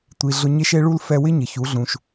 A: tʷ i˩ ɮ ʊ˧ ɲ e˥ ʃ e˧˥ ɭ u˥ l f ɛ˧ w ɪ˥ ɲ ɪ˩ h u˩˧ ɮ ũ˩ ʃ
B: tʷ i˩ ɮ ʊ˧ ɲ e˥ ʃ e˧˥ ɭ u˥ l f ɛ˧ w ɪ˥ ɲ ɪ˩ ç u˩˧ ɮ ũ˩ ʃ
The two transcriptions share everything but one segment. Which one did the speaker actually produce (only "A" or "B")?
B